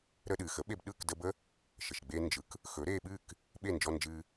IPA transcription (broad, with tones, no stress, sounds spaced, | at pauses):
ɾ əː˧ ɗ ɨː˩ x ə˩˥ ɓ e˧ b ɗ ɯ˥˩ k d ə˧ b ə˥ | ʃ ə˩ ʃ ɡ͡b e˧ n d͡ʒ ɯ˩˥ k | x ɵ˩˥ ɾ eː˧ ɓ ɨː˥˩ k | ɓ e˥˩ n d͡ʒ ɔ˧ n d͡ʒ ɨː˧